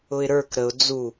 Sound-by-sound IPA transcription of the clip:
ʊɪ̯ɾə˞k ɾəʊ̯ d͡zu

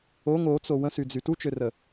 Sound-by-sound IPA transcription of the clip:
oŋ ot͡so wə̃syd͡zy tut͡ʃørə

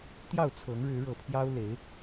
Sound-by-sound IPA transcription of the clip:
t̪jɑ˥˨ʊ̯t͡sʰɤ˨˦ŋ ɻɻ̩˨˦ɻɤ˨˩pʰjɑ˦ʊ̯ le˨˦ɪ̯

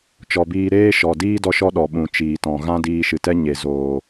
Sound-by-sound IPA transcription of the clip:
t͡ʃɔ˧biː˦ ɾeː˦ʃɔ˨diː˦ dɔ˦ʃɔ˦ ɗɔ˨ɓũ˨ t͡ʃiː˨tɔ̃˨ ɣã˦diː˧ʃɨ˨tɛ˦ ɲe˨zoː˨

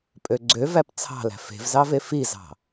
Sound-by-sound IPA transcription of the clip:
pʼøɡ͡ǀøvæp t͡sʰɑ̤læ̤ fe̤vzɑve fizɑ̤

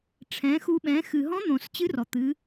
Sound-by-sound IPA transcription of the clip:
ʈ͡ʂʰɛ̃˩˧xu˧ɓɛ̃˩˧ xɨ˩ɦɔ̃˧˥n̪õ˩s t͡ɕɨ˧˥rɔ˩t̪ɨ˩˧

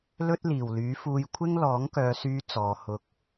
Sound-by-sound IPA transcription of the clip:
lɵ˥t̚liː˨˩wlyː˨˥fuː˧j kʷʰɪ˥ŋlɔː˨˥ŋkœː˨˧syː˧ t͡sɔː˨˧hʊ˧k̚

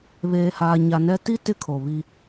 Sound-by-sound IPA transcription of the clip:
βeː˨haː˨ɲa˨nɛ˦ ti˦ tɪ˦kʰo˨βi˦

